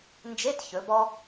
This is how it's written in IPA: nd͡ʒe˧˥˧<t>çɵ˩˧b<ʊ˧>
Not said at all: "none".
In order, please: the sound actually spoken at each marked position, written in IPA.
t, ɔ˧

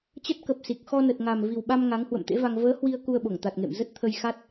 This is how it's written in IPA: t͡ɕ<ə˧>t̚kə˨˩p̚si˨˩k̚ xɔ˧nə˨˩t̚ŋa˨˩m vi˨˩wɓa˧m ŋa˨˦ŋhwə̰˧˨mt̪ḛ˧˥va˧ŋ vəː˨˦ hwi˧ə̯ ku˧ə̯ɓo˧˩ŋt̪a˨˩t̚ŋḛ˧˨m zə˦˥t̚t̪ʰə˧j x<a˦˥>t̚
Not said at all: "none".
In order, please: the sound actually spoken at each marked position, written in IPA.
ə˦˥, a˦˥

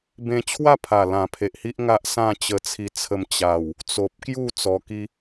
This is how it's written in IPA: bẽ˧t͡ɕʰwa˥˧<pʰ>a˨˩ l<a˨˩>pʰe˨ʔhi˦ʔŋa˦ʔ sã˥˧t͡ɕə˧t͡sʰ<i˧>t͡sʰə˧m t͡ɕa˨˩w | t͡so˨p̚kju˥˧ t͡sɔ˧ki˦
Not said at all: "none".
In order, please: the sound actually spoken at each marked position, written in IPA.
pʰ, ã˨˩, i˧

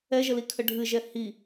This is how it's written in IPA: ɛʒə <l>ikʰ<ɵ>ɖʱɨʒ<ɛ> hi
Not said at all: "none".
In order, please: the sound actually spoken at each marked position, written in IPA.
l, ə, ɛ

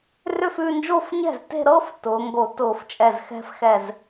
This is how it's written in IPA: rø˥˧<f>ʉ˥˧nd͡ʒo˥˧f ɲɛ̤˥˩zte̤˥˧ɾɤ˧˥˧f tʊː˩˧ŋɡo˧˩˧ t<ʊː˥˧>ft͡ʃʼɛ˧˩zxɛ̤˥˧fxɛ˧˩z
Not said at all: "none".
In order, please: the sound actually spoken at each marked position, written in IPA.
f, ʊː˧˩˧

